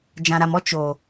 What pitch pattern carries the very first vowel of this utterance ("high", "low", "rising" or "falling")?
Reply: low